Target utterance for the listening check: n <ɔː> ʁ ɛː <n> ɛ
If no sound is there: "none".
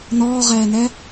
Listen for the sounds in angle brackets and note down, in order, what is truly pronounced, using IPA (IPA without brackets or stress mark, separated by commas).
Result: ɔː, n